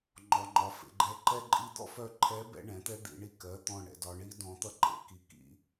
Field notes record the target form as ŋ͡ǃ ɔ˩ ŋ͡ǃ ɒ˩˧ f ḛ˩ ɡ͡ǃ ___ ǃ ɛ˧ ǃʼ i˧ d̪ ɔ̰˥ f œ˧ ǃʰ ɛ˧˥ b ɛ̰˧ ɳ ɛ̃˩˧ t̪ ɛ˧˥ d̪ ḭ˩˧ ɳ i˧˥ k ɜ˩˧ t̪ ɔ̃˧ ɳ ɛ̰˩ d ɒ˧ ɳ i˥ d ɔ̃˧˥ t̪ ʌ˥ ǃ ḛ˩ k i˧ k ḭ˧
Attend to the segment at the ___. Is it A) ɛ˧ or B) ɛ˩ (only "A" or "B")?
A